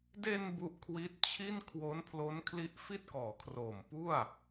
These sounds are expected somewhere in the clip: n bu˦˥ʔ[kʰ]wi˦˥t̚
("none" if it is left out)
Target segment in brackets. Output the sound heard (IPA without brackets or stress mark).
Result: kʰ